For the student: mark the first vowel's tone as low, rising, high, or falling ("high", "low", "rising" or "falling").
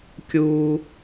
high